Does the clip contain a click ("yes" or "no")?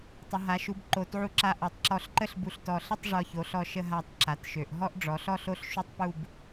yes